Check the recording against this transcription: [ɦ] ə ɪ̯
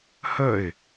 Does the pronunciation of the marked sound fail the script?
yes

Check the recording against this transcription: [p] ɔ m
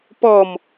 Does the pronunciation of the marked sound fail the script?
no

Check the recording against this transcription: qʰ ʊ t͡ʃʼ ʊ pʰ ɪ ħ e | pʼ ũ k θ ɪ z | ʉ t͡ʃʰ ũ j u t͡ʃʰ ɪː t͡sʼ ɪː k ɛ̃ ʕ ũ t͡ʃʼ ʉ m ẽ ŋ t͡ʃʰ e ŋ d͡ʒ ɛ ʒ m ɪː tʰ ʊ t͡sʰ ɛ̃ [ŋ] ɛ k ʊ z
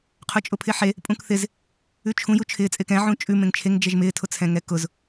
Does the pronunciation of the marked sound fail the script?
no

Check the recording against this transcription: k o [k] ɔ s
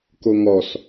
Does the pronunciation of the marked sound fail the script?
yes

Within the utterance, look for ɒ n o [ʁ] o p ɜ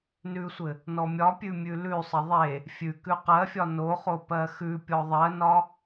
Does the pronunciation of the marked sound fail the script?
yes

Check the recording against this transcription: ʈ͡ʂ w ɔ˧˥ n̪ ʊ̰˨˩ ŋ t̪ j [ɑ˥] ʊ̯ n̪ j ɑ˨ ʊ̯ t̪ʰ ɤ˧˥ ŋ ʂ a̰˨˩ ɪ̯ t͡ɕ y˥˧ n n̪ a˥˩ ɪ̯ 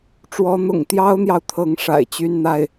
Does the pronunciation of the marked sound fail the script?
no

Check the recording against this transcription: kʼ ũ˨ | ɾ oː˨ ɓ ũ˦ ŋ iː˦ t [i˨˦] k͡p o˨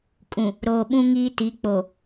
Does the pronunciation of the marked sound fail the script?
no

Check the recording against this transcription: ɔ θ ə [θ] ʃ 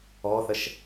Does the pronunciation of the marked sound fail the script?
yes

